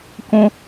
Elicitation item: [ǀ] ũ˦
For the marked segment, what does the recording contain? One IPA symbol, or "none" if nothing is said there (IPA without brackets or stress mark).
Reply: k